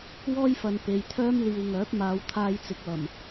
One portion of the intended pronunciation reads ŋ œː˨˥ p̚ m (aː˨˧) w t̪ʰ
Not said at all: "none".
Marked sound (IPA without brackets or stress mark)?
aː˨˧